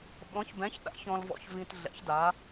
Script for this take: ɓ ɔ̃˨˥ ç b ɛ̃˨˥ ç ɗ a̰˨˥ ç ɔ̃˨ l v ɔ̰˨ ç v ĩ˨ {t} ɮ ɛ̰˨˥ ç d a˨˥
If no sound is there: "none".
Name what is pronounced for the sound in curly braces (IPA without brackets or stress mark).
t